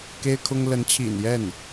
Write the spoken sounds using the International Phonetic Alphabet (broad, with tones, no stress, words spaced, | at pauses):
ke˥ɪ̯kʰʊ˥ŋ lə˧˥nt͡ɕʰḭ˨˩njɛ˥˩n